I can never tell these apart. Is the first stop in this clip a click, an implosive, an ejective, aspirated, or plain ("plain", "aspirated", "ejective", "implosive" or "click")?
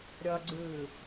click